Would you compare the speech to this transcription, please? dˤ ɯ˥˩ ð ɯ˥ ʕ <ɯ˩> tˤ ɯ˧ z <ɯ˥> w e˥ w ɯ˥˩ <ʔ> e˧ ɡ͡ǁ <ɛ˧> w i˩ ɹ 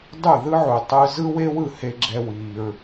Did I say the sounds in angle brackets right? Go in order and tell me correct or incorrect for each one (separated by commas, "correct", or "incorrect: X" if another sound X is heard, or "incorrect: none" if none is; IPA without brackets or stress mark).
incorrect: u˩, correct, incorrect: h, correct